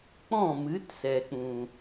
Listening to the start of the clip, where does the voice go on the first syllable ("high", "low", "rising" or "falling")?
falling